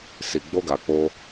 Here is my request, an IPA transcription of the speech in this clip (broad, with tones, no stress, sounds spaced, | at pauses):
s i˨ ɡ͡b o˧ ɡ a˨ k͡p o˧